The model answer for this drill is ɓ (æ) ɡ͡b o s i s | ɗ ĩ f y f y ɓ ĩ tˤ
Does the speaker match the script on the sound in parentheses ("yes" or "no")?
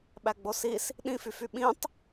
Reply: yes